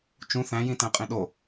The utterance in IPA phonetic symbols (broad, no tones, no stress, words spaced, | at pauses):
t͡ʃũ θæ̃jĩtæ̃qʼĩ ɗo